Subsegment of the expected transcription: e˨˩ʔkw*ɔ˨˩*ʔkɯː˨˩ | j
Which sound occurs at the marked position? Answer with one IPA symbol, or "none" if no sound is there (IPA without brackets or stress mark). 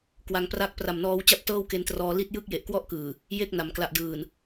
ɔ˥˩